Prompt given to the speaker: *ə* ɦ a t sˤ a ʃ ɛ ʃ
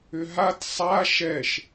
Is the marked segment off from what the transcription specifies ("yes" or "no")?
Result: yes